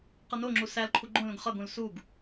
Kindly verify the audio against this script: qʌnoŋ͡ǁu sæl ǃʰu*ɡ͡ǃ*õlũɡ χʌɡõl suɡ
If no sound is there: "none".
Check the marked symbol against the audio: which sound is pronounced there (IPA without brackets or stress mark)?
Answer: ɡ͡ǃ